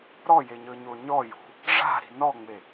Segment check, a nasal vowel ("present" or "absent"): absent